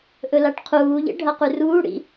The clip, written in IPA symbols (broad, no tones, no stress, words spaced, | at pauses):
ʔɵlaʈqʰuːʎḛ ɖʱɐqʉruːɽḭ